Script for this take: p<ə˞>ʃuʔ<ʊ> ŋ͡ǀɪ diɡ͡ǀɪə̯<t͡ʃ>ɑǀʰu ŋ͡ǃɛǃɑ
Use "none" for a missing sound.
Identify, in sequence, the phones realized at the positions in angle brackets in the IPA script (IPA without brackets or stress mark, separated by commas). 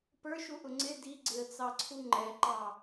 ə˞, ʊ, t͡s